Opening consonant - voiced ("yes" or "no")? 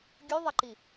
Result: yes